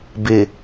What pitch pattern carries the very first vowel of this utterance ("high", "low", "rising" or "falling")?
low